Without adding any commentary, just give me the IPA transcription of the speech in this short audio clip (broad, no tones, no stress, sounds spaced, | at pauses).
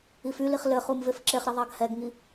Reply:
i f y l i χ l ɘ χ u m v e f ǁ e χ ɾ i ðˤ ɑ ɡ h ɛ ɡ ŋ i